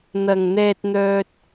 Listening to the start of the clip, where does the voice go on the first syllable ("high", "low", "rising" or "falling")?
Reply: low